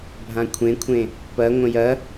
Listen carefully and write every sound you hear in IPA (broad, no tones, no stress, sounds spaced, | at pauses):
bʱ ã kʷʰ ẽ kʷʰ ẽ | p ɐ ŋʷ ə̃ j ɐ